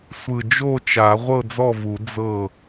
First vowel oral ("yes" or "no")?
yes